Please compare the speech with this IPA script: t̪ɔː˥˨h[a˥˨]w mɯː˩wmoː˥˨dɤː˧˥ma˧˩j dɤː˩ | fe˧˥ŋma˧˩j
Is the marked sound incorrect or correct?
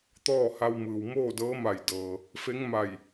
incorrect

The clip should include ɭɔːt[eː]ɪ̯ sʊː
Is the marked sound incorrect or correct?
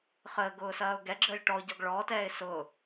incorrect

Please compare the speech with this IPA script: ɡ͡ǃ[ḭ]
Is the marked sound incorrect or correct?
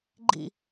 correct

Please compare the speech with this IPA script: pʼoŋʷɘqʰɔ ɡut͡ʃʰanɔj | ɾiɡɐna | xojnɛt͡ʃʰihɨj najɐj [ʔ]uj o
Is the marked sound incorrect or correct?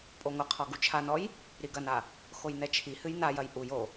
correct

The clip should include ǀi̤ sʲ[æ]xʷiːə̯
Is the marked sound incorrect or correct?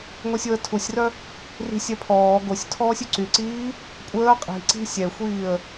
incorrect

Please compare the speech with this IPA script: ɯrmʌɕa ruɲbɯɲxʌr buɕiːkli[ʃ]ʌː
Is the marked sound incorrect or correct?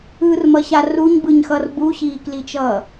incorrect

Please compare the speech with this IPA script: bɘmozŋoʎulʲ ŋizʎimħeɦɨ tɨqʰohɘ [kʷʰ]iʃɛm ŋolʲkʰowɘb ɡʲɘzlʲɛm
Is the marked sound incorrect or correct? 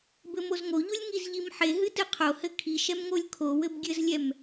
incorrect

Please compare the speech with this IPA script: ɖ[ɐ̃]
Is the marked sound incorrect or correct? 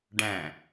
incorrect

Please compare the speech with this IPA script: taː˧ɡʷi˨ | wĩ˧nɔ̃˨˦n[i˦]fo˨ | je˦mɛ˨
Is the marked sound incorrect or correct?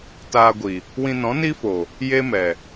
correct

